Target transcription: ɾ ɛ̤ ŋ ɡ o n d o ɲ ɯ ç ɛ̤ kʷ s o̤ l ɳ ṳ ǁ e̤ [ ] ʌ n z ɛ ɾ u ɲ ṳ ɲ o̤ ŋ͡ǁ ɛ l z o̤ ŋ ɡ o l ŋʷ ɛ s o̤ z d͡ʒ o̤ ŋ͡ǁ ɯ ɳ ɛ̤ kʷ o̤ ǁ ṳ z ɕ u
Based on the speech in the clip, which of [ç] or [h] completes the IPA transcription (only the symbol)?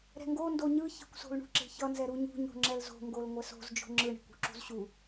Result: ç